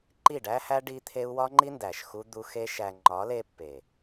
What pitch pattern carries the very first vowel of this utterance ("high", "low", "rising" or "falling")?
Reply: falling